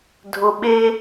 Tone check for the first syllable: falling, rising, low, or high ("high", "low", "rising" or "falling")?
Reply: low